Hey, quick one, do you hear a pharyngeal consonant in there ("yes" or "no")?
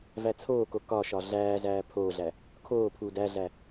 no